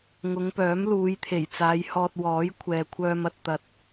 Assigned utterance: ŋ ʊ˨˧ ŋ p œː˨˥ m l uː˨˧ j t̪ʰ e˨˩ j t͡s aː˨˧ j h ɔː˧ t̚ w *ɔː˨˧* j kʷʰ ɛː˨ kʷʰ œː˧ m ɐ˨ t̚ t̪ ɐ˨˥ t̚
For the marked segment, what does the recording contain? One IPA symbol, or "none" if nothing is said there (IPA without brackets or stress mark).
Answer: ɔː˨˥